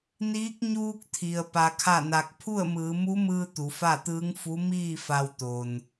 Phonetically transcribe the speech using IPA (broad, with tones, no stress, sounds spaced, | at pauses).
n iː˧˥ k̚ ɲ uː˧ k̚ t̪ʰ i˩ ə̯ p a˧ kʰ a˥˨ n a˧ k̚ pʰ u˥˨ ə̯ m ɯː˩˧ m u˧˥ m ɯː˧ t̪ u˩˧ f a˥˨ t̪ ɯː˧˥ ŋ f u˧˥ m iː˥˨ f a˧ w t̪ o˩ n